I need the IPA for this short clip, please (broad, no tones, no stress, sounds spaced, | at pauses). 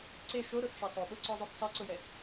ǀ e ʃ o ɾ ʊ θ ʃ e sˤ o ɓ o ǀ ɔ zˤ o θ sˤ ɛ ǀ ʊ j ɛ